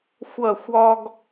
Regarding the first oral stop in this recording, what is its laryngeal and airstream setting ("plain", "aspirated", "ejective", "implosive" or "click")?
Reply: plain